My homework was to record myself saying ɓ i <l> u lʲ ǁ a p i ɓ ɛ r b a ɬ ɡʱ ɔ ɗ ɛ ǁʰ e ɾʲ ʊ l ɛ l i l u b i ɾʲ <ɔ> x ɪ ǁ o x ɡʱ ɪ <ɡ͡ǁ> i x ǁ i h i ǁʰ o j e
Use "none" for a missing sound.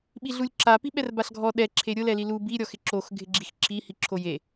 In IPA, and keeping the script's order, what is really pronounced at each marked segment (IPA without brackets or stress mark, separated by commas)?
ɮ, ɔ, ɡ͡ǁ